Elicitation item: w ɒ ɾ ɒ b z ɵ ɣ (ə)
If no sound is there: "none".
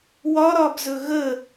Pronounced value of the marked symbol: ə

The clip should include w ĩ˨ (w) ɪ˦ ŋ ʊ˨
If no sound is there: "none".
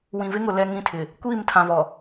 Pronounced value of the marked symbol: v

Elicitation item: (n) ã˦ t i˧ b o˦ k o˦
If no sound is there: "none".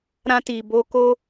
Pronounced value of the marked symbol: ɾ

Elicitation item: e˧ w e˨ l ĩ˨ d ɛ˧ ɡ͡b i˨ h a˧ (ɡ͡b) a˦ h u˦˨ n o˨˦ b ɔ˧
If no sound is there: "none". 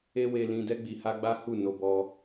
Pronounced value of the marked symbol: ɡ͡b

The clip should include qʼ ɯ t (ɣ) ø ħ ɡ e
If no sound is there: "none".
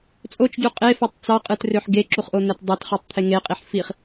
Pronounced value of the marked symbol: r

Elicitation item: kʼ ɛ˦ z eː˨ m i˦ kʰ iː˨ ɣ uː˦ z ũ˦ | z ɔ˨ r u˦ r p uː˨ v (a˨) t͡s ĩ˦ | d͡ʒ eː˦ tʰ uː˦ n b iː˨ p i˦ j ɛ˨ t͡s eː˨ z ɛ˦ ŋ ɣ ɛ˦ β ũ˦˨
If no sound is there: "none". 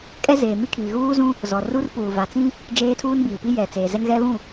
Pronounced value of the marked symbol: a˨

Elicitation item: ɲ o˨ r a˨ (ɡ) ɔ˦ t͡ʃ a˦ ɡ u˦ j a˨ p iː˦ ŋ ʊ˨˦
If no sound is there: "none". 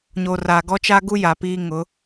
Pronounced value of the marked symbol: ɡ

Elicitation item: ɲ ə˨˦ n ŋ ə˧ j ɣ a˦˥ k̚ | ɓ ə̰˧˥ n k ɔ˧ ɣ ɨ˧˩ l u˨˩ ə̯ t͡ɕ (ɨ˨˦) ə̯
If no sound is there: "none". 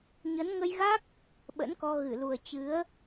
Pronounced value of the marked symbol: ɨ˨˦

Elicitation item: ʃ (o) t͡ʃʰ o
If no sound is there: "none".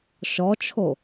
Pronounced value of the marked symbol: ɔ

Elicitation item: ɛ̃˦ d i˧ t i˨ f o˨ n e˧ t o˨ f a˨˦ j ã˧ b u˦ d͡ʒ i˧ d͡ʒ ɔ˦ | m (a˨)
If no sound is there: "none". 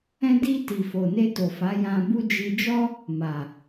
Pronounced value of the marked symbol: a˨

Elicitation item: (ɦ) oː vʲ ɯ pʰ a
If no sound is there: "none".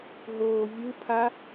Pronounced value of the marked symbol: ɦ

